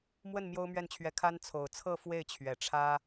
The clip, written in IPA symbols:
mwə˥˩n mjo˥ʊ̯mɥɛ˥˩nt͡ɕʰɥɛ˧˥ kʰa˥n t͡sʰo˨˩ʊ̯t͡sʰɤ˥˧ fwe˥˩ɪ̯t͡ɕʰɥɛ˨˩ʈ͡ʂʰä˥

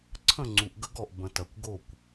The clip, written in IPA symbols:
ǀʰə̃˦˨ŋ͡ǀu˨ʔ ɡə˦ɡɔ˨ʔ bə̃˨tɐ˨kʷ ɡo˦˨kʷ

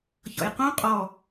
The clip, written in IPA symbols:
çɔ̰jqũ qʼɔ

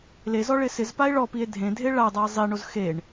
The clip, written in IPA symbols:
lezɔ ɭɪsɪzpae̯ ɭɔpie̯ dʱẽdʱe ɭadˤae̯ zˤiɳoz xeɳ

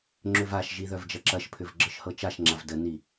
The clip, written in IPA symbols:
ŋ͡ǁʏvaʃʒi ðœvd͡ʒɐǁɐʃpʰʏv ɡ͡ǁɤʃhɤt͡ʃaʃŋ͡ǁav dəni

